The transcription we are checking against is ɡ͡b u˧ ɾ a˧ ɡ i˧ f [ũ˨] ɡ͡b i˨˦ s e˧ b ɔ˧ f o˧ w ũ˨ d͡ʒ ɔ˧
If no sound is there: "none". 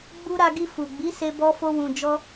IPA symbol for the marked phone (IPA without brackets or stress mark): u˨